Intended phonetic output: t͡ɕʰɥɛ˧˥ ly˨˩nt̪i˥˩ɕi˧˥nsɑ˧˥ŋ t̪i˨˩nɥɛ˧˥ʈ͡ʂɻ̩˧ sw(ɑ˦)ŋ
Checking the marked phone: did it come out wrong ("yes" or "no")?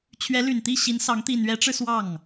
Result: yes